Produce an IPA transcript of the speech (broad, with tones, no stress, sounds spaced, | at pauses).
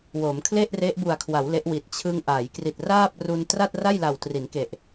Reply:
w o˩˦ m kʰ l e˥˩ ʔ r e˦˥ ʔ b u˨˩ a̯ kʰ w a˩˦ w l e˦˥ ʔ w i˨˩ t̚ t͡ɕʰ ɯ˧ ŋ ʔ a˩˦ j k r i˨˩ t̚ r aː˥˩ p̚ r u˧ n t r a˥˩ t̚ r a˥˩ j l a˨˩ w t r i˩˦ n k e˨˩ ʔ